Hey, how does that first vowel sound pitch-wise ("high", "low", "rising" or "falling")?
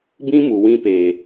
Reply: high